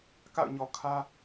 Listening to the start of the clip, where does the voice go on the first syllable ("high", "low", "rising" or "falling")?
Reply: falling